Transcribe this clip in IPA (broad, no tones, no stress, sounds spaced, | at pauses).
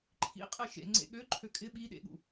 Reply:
ǃʰ ḭ qʼ ɛ ʃ ḛ ŋ͡ǀ ḛ ɠ ø ǃʰ ø kʼ ɪ ɓ i ɗ ḛ ɠ ṵ